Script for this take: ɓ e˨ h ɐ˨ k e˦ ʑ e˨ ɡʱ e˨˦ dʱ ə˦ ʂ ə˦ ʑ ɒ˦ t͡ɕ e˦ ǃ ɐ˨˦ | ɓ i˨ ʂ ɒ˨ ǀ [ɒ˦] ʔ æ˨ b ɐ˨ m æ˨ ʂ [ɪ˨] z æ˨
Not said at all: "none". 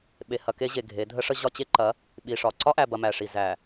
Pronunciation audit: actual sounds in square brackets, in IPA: ɒ˦, i˨

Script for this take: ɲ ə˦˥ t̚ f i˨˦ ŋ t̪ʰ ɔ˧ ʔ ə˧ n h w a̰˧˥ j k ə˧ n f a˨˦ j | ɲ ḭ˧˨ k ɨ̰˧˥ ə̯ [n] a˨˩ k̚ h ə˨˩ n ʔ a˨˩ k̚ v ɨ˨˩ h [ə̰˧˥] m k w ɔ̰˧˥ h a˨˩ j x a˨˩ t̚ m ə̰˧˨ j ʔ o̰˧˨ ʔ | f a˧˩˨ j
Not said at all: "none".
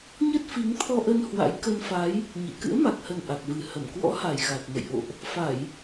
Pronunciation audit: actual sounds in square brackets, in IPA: m, ə˧˩

